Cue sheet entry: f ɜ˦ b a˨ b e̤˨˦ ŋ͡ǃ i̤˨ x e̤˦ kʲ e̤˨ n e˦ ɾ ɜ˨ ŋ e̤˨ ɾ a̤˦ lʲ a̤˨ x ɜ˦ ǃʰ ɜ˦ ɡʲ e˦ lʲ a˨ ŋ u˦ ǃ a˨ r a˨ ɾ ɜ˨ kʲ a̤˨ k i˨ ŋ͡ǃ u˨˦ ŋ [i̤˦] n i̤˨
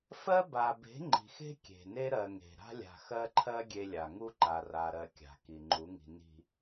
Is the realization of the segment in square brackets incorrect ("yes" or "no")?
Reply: yes